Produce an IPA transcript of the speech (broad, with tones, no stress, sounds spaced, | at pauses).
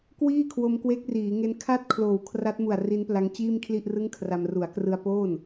k w iː˥˩ kʰ w o˧ m k w e˦˥ k̚ r iː˩˦ ŋ e˦˥ n kʰ a˥˩ t̚ kʰ l oː˨˩ w kʰ r a˦˥ t̚ m u˨˩ a̯ r i˦˥ n p l a˦˥ ŋ t͡ɕ iː˥˩ m kʰ l i˥˩ ʔ r ɯ˥˩ ŋ kʰ r a˧ m r u˩˦ a̯ k r ɯ˧ a̯ p oː˥˩ n